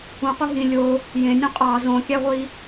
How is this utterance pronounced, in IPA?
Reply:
ũ q u ɦ ĩ lʲ o | j ẽ nʲ ũ qʼ ɑ z õ kʲ æ ʁʷ i

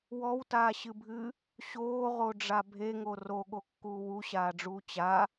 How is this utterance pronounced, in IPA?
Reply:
w ɔ w t aː ɕ ɨ bʱ ɨ | ɕ oː ʁ o ɖ͡ʐ a bʱ e ŋ o r o ɠ o kː uː w u ɕ aː ɖ͡ʐ uː t͡ɕ a

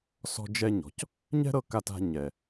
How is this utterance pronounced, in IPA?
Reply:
s ɔ̤˧ d͡ʒ ɛ˧ ɲ ɔ̤˩ c | ɲ ɛ̤˥ ɾ ɤ˧ k a˧ t a̤˧ ɲ ɛ˩

